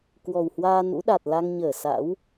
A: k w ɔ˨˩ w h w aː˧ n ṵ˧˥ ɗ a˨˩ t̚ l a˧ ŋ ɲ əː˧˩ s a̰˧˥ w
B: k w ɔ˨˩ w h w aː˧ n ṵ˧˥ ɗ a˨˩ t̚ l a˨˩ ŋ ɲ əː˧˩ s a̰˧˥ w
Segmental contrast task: A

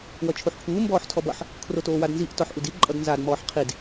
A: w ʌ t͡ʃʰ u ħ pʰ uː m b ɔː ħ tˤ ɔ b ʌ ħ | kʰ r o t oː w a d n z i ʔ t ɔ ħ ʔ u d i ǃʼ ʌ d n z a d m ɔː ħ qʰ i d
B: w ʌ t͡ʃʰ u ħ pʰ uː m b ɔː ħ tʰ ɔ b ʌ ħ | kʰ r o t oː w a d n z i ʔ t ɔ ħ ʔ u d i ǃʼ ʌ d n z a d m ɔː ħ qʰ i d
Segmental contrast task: B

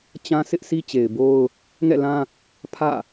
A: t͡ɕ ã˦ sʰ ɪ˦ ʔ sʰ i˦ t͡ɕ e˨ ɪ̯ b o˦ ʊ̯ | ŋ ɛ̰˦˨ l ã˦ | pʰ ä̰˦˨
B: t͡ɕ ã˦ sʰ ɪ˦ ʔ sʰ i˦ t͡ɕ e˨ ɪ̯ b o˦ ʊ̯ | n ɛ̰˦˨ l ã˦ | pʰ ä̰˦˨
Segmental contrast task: A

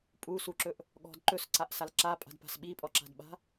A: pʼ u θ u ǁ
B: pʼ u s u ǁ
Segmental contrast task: B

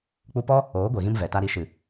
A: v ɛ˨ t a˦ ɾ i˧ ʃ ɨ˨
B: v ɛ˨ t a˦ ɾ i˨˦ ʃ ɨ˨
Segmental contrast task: B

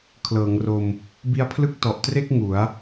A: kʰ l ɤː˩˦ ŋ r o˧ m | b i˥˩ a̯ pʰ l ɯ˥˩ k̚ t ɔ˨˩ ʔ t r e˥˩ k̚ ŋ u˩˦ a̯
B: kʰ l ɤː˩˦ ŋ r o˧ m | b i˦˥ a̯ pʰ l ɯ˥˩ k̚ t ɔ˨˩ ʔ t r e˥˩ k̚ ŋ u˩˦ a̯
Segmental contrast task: B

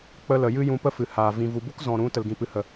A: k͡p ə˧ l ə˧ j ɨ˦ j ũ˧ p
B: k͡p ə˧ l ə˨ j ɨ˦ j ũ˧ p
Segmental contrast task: B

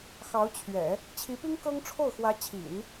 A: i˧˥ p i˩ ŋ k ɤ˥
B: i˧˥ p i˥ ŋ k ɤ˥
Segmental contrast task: B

